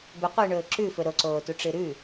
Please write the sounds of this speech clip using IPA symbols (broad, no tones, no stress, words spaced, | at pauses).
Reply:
bɵqʷɨːɳɵː ǁʉfɵ ɾoǀoːtuʈ͡ʂɨ ɾʉ